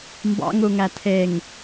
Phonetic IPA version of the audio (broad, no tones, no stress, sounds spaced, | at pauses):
m b ɑ̰ ŋ u ŋ æ tʰ e ŋ